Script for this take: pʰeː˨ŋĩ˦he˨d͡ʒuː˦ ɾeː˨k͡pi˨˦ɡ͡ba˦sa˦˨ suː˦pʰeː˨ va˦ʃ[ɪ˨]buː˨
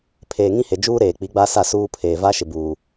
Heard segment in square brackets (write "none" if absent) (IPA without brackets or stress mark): ɪ˨